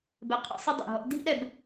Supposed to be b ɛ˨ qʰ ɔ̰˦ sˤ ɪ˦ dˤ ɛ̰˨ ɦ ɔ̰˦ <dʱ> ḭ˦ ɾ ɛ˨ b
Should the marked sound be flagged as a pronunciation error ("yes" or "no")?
no